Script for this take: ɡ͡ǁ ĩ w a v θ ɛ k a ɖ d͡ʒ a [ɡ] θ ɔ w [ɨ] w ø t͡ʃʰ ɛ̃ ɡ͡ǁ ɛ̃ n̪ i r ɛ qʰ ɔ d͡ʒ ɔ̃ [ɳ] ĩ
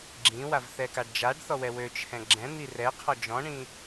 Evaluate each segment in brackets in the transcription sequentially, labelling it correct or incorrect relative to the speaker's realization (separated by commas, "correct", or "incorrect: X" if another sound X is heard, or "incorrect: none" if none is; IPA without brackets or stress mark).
incorrect: ɖ, incorrect: ɛ, correct